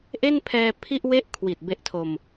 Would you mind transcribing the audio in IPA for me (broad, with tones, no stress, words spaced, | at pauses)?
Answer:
ʔe˥˩npʰɛː˧ pʰi˥˩ʔ we˥˩ʔkʰwi˨˩t̚ be˦˥ʔtʰo˧m